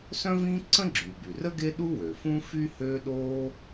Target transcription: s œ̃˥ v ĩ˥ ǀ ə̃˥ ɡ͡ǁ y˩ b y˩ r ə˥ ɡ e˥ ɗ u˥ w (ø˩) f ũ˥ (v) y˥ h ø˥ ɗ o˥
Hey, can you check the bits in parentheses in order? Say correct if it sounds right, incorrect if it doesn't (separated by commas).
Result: correct, incorrect